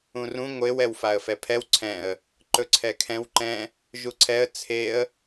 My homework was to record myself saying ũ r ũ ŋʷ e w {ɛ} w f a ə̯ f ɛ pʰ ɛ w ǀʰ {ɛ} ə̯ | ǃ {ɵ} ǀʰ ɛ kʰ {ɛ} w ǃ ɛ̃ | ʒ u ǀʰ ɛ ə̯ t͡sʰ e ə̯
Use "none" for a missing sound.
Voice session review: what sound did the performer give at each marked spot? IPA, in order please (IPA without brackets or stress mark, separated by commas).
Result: ɛ, ɛ̃, ɵ, ɛ̃